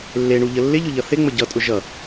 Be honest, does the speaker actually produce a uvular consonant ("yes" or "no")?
no